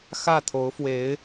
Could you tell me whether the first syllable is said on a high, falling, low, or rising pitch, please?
falling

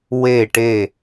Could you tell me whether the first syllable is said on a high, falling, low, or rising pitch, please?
falling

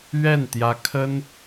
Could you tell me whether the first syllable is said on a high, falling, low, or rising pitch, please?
falling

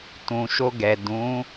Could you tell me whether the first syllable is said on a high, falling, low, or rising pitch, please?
low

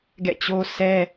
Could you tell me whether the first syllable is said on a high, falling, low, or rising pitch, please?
falling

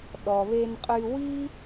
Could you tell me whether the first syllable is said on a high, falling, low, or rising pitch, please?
low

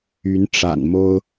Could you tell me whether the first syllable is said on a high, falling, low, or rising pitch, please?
rising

